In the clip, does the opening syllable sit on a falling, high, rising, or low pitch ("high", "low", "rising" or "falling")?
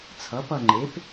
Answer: rising